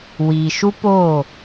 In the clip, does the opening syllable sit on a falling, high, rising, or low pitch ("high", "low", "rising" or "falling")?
low